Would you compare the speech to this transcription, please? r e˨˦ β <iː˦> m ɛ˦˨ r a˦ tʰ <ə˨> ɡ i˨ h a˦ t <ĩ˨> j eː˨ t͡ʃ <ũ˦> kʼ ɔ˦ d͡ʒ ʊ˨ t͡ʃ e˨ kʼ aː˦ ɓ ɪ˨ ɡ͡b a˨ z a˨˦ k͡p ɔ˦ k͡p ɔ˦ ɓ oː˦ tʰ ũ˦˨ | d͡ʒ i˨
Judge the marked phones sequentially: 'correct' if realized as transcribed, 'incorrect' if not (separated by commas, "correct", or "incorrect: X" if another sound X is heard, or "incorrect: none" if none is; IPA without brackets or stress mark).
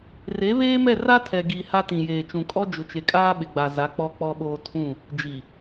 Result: incorrect: eː˦, incorrect: ɛ˨, correct, incorrect: ũ˨